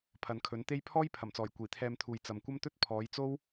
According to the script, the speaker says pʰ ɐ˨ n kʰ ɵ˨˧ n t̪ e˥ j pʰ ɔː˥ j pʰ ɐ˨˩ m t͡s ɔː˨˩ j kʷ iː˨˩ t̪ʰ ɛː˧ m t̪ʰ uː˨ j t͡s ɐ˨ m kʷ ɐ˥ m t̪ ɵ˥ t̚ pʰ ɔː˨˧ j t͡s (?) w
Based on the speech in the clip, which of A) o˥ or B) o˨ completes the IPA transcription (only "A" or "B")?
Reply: A